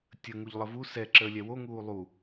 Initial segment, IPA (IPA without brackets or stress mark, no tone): tʲ